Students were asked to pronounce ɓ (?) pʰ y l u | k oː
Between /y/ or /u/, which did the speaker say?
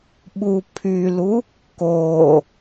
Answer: u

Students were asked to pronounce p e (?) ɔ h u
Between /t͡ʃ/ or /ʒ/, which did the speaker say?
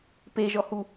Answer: ʒ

